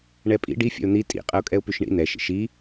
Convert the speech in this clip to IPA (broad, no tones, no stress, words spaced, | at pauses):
ɳɛpʼḭ ɖi fʲɛ̰ʊ̯n̪i tʼḭ qʼɐʊ̯kʼɛʊ̯pyʃɳḭ n̪ɛʃ ḭʃi